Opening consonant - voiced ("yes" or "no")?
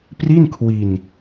no